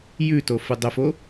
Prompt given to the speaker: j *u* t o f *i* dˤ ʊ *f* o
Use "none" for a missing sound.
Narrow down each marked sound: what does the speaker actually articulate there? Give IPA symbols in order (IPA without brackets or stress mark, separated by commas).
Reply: ʉ, ɨ, f